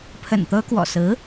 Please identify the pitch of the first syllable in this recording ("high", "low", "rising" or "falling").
low